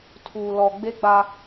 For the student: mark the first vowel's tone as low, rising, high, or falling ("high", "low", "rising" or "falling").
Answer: low